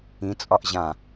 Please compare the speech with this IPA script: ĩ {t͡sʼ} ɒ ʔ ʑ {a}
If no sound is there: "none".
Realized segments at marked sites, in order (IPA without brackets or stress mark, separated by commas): t͡sʼ, ã